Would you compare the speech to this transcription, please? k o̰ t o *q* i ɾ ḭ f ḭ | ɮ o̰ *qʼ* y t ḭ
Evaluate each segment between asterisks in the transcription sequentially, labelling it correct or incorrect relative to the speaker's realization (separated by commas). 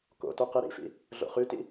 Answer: correct, incorrect